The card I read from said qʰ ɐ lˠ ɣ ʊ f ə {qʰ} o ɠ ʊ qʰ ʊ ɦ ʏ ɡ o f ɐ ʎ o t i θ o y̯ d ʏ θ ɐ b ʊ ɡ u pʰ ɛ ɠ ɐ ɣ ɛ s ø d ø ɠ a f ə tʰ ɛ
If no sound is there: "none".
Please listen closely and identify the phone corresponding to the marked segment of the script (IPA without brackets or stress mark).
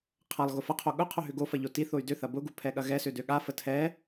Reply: qʰ